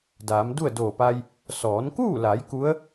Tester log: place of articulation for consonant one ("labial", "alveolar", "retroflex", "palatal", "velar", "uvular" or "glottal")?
alveolar